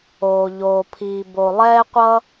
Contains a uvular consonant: yes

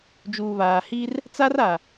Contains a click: no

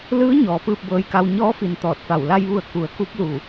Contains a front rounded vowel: no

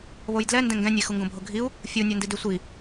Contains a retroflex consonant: no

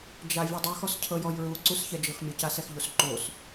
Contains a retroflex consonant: no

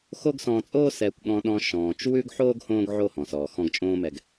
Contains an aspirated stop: no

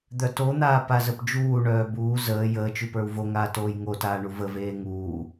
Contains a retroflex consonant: yes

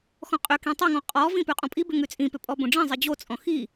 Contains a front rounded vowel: yes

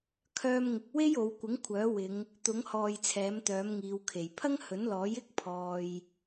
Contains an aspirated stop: yes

